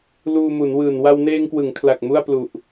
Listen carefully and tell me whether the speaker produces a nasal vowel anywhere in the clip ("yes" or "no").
no